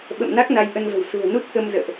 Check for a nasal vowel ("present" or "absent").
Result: absent